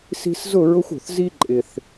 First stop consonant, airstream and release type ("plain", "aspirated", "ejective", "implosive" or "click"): click